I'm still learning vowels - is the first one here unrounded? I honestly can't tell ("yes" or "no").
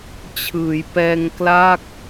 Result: yes